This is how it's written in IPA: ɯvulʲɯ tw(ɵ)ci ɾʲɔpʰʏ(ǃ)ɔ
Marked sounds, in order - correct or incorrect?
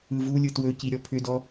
correct, incorrect

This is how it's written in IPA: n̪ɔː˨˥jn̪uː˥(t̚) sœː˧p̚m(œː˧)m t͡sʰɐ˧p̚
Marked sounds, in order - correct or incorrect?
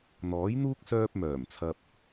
incorrect, incorrect

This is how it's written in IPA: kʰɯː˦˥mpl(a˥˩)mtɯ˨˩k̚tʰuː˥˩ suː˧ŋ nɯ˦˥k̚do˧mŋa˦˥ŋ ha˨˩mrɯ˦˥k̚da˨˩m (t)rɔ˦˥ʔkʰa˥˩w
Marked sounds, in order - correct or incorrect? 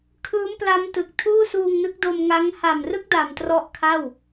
incorrect, correct

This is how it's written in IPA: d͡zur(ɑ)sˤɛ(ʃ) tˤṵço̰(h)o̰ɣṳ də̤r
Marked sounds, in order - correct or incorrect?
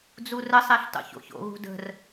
incorrect, incorrect, incorrect

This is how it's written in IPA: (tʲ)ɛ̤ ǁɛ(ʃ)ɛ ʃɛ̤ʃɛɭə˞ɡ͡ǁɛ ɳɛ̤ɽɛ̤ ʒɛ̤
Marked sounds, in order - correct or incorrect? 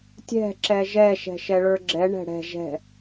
correct, incorrect

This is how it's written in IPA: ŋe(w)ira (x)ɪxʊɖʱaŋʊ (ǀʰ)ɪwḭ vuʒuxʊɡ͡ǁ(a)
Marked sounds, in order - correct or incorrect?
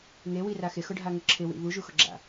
correct, correct, incorrect, incorrect

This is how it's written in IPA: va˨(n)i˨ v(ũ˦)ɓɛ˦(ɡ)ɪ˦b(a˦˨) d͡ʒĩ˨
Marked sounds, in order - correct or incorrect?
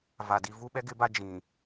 incorrect, incorrect, correct, incorrect

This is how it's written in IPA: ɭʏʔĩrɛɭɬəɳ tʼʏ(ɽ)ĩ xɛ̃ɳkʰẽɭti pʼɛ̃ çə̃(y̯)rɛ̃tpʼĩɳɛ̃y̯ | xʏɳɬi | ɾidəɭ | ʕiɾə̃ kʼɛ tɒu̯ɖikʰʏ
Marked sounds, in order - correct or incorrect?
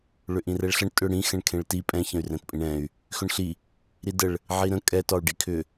correct, correct

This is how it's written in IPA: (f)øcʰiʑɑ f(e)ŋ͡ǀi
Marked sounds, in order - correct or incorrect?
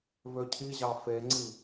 incorrect, correct

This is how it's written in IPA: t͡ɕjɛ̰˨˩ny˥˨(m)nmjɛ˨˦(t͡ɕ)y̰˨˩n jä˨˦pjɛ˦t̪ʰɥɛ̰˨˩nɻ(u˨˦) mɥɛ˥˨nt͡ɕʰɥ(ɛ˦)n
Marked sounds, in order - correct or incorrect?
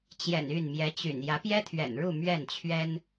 incorrect, correct, incorrect, correct

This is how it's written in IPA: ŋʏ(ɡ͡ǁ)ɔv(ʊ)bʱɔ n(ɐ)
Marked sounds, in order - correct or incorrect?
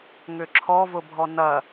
incorrect, correct, correct

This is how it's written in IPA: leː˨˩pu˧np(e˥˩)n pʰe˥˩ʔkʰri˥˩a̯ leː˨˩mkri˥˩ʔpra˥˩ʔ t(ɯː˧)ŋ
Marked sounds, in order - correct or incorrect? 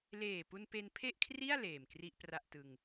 incorrect, incorrect

